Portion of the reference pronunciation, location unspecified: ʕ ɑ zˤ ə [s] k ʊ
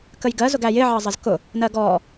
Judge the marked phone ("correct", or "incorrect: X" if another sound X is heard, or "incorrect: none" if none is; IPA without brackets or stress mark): incorrect: z